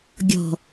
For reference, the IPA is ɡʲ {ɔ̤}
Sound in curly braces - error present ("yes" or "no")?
no